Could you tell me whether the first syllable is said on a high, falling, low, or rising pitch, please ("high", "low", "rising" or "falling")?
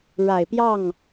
low